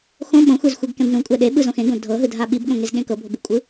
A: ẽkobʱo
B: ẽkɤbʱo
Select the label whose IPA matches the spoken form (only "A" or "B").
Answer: B